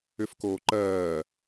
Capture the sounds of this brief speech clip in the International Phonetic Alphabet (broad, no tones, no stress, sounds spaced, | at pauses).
ʏ f k oː ǃ ɜː